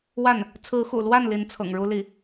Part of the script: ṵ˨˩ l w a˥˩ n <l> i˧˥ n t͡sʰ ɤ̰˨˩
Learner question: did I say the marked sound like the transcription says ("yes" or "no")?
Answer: yes